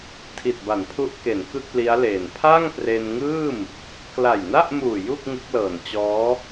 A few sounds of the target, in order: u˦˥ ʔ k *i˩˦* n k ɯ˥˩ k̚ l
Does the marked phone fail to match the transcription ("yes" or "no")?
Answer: yes